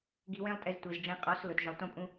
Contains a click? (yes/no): no